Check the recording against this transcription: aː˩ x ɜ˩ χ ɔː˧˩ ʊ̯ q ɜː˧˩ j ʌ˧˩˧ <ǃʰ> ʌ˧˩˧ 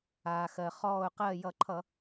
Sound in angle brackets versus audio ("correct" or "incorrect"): correct